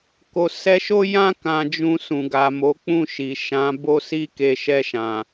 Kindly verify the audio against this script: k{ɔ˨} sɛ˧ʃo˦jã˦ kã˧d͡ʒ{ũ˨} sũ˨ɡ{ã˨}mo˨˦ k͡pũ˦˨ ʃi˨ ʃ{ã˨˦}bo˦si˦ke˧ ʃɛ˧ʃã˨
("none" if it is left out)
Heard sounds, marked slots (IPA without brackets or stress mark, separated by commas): o˨, ũ˧, a˨, ã˨˦